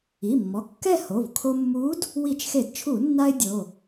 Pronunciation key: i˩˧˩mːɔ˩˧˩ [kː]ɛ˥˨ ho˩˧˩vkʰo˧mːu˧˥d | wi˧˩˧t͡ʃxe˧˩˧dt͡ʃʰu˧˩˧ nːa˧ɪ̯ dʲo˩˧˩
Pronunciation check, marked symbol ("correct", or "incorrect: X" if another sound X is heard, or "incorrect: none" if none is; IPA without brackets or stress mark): correct